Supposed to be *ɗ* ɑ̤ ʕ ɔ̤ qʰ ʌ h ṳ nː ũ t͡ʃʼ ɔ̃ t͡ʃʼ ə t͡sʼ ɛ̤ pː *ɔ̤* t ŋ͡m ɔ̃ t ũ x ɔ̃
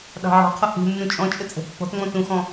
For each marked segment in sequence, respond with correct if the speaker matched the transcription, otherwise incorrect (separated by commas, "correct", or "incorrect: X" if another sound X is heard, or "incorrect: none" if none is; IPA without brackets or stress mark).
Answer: correct, correct